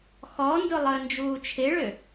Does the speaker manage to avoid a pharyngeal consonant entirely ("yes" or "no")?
yes